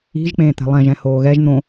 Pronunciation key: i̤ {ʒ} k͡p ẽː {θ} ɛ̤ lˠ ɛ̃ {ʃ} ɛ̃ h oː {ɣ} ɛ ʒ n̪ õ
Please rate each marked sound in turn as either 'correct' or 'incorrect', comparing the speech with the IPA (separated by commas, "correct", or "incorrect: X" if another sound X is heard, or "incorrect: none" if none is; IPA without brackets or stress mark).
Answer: correct, incorrect: t̪, incorrect: ʒ, correct